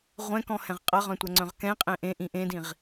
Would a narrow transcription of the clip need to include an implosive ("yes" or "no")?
no